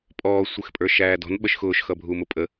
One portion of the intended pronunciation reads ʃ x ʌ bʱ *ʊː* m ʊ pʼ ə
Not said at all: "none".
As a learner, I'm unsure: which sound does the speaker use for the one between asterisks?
uː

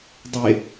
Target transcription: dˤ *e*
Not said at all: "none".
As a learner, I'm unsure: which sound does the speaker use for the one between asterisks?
e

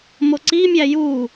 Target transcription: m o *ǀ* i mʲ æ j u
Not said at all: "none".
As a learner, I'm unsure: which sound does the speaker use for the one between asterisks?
ǀ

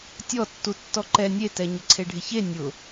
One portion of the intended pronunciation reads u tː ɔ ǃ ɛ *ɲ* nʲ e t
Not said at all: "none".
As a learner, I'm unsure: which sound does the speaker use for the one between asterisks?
none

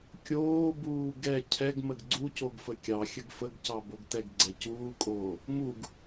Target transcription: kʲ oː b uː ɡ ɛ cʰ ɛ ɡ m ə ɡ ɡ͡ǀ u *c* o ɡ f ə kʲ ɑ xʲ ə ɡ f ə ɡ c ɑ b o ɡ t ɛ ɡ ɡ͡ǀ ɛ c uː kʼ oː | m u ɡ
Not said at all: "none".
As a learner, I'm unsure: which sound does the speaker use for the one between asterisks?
c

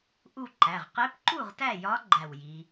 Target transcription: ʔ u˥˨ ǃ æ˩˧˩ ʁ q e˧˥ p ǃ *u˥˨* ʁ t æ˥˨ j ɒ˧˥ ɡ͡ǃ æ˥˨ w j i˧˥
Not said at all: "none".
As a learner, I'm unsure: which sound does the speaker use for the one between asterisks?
u˥˨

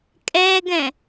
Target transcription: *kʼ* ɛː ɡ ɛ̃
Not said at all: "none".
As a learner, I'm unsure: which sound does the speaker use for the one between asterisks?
kʼ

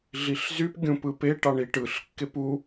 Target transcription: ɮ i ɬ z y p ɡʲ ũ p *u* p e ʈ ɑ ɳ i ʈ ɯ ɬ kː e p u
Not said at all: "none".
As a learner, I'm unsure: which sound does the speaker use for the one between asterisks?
ɯ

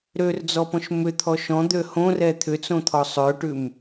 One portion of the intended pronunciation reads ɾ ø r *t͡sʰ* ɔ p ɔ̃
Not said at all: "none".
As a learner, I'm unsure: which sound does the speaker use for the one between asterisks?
d͡z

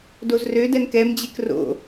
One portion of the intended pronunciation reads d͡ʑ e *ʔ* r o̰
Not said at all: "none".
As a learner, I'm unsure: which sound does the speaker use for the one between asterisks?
k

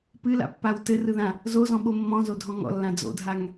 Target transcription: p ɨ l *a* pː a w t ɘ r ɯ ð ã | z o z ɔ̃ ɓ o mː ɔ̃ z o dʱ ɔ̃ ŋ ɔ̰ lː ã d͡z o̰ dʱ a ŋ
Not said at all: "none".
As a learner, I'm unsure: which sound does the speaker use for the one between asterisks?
a̰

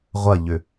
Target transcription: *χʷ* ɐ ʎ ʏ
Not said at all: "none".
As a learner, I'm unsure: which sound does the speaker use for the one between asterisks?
ʁʷ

